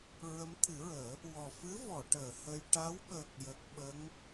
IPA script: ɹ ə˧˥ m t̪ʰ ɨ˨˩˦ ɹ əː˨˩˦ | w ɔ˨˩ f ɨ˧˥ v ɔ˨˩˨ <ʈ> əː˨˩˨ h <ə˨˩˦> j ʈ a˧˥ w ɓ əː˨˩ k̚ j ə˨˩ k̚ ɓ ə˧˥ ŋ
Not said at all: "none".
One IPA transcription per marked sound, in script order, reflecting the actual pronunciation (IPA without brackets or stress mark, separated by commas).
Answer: ʈ, ə˧